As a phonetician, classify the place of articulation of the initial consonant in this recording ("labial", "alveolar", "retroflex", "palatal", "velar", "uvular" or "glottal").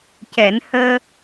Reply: palatal